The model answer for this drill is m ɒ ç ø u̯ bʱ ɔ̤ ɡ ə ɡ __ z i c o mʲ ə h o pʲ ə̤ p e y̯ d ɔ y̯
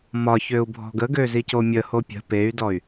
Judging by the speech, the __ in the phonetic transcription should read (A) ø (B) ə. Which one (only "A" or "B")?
A